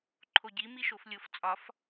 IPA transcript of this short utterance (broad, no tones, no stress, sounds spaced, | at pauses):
ǃʰ o ɟ i m i ʃ o f lʲ o f t͡sʼ ɒ f